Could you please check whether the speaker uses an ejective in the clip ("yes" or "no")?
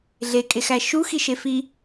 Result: yes